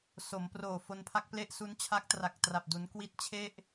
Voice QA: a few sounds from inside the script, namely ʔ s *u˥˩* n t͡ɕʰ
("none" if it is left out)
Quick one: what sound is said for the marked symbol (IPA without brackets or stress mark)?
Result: u˦˥